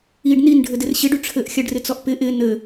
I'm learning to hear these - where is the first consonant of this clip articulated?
retroflex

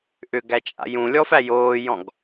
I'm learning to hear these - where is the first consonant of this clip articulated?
throat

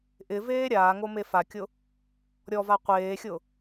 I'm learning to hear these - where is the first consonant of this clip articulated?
throat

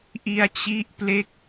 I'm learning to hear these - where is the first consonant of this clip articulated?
throat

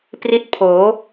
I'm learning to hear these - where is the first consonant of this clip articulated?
lips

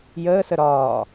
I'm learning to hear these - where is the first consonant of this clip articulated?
palate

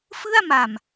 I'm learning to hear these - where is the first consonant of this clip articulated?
lips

